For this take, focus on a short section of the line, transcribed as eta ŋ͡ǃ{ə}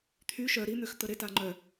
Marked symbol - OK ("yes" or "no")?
no